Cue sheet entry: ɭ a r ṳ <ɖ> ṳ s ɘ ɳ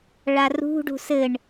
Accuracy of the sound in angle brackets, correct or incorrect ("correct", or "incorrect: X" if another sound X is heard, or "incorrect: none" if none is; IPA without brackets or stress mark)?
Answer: correct